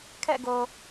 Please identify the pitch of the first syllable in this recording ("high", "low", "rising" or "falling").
falling